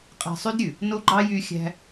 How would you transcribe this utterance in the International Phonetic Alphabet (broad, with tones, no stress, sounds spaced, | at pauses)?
qʼ æ̤˧ sˤ y˦ d ɾʲ ʉ˨ | n o˦ ɡ͡ǃ ɑ˦ j y˦ xʲ æ̤˦